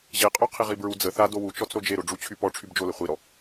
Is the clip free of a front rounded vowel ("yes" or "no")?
no